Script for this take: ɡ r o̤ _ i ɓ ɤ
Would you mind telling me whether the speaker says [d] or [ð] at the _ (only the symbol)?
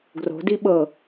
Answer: d